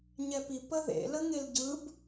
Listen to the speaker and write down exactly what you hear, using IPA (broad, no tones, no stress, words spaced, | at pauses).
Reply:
ɲɛpi pə ðḛləŋel ɟɯb